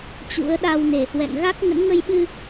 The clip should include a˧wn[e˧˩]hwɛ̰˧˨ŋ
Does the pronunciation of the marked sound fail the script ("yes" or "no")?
no